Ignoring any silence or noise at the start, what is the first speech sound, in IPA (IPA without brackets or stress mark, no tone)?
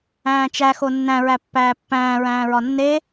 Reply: æ̃ː